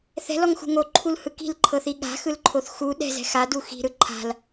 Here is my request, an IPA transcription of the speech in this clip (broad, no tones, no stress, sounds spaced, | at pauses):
θ ɛ̤ l ɔ ŋ x ṳ ŋ o ǃʰ u l h ɯ k i̤ l ǃʰ ɤ θ i ɠ a̤ x ɯ l ǃʰ o θ x u ɗ ɛ̤ z ɛ̤ x a d u x i̤ ɾ ɯ ǃʰ a̤ l